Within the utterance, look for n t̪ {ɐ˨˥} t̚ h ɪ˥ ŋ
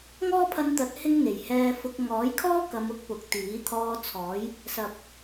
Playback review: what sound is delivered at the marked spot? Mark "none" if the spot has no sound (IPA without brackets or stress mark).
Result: ɐ˨˥